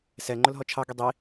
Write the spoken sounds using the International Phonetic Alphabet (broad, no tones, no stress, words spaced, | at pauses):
sɛ ŋ͡ǃʊlɦɔt͡ʃʰɑ ɡidˤi